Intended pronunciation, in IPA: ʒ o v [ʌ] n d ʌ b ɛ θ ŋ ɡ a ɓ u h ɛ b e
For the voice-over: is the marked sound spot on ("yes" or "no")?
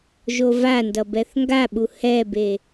no